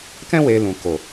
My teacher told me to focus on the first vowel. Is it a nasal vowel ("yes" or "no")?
yes